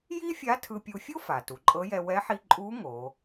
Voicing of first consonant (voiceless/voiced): voiced